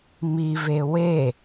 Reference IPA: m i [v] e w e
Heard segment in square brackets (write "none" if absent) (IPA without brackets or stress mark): v